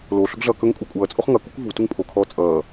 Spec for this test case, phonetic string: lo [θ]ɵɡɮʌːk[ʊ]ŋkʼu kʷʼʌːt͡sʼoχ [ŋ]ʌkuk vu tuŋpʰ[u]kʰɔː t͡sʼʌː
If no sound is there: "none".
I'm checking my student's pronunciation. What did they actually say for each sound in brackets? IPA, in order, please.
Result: ɬ, ɵ, ŋ, o

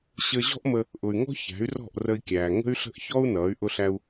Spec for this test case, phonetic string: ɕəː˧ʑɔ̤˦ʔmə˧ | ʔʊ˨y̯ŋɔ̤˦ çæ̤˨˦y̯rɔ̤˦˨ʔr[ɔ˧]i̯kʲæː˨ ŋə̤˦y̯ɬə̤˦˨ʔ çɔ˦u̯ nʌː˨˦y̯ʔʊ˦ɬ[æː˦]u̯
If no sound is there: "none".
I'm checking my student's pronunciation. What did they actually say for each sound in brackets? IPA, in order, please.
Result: ə˧, æ˦

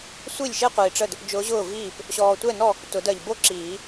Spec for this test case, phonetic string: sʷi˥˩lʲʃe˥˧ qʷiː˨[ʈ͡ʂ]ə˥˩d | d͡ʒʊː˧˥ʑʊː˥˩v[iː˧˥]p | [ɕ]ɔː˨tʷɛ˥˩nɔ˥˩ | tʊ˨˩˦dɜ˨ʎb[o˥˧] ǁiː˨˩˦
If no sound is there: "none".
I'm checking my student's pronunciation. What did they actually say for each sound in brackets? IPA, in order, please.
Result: ʈ͡ʂ, iː˥˩, ɕ, o˥˧

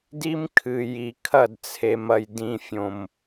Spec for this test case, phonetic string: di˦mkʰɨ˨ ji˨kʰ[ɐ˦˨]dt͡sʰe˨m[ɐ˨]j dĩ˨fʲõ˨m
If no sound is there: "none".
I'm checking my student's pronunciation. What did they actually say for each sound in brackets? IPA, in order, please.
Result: ɐ˦˨, ɐ˨

